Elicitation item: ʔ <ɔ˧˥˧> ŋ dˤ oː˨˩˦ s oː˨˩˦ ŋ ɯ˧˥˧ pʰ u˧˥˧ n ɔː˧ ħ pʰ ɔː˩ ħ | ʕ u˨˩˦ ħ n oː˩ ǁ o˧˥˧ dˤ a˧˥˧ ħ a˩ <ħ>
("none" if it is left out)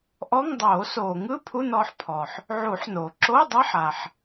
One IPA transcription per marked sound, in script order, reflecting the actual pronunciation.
ɔ˧˥˧, ħ

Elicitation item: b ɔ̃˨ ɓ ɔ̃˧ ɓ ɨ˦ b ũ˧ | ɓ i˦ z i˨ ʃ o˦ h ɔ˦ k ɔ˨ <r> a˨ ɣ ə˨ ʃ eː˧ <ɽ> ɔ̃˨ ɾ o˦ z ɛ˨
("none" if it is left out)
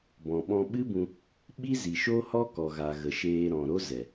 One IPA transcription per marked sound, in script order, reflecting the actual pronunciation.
ɣ, ɾ

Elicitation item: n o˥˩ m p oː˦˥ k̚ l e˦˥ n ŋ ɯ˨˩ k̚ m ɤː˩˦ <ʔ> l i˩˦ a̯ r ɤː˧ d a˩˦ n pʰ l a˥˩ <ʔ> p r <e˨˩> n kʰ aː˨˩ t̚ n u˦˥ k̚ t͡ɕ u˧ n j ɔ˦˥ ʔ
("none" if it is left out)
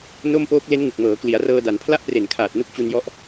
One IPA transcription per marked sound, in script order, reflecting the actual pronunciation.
k, ʔ, e˨˩

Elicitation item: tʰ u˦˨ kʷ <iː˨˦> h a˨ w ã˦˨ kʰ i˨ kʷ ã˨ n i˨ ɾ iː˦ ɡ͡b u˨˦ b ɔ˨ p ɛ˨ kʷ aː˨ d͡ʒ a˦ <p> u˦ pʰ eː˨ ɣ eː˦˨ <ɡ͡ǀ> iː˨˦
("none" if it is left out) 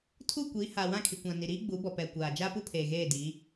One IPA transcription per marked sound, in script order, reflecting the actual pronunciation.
iː˨˦, p, d

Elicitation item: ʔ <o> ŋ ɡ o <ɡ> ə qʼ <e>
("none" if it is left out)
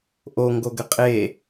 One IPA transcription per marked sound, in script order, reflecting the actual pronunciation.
o, ɡ, e

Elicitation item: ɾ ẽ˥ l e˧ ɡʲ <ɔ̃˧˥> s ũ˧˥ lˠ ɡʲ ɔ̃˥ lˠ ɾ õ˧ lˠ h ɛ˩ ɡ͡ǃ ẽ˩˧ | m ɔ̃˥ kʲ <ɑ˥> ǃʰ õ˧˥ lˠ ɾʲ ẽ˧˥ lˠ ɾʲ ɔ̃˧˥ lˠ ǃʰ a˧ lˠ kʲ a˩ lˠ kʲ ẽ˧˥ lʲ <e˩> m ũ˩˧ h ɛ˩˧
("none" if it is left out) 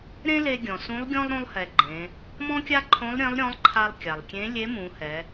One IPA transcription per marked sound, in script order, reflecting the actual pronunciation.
ɔ̃˩, a˥, e˧˥

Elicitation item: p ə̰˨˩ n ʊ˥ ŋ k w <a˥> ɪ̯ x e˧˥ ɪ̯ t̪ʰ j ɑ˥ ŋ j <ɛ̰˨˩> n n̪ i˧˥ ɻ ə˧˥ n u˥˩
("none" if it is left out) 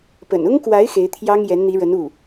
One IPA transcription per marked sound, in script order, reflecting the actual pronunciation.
a˧˥, ɛ˧˥

